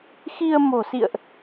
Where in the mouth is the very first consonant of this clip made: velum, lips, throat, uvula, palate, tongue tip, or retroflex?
velum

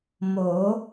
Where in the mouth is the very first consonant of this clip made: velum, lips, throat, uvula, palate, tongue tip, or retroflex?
lips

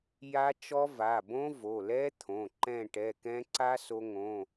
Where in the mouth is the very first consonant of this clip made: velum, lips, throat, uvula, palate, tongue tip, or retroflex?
palate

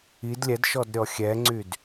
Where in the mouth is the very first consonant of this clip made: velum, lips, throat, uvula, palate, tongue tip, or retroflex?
tongue tip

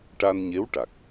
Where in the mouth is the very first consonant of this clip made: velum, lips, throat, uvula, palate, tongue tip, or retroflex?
retroflex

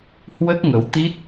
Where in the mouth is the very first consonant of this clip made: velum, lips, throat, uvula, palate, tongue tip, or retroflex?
throat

